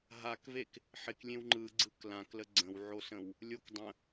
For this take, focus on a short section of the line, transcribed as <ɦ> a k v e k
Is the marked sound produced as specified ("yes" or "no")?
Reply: yes